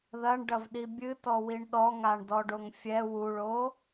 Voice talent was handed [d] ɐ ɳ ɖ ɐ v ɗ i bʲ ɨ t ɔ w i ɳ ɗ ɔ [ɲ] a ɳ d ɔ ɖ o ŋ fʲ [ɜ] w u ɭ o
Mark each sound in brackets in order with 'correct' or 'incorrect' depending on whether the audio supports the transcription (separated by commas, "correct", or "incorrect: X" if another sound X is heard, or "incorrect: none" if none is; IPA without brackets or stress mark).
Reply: incorrect: ð, incorrect: ŋ, incorrect: ɛ